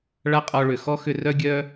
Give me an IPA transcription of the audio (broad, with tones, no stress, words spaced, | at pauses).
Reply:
ɭa˦qʼɔ˧ɭʏ˨ xɔ˦ xʏ˧rœ˦ ɡʲœ˧